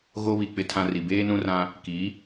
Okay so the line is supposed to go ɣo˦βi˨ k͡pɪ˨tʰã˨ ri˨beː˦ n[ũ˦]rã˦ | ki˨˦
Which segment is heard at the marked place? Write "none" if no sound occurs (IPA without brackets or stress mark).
ũ˦